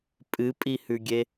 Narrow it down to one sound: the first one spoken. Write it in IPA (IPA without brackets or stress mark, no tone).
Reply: pʼ